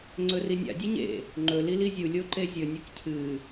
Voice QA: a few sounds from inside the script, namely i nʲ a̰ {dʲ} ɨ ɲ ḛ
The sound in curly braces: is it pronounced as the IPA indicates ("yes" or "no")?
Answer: yes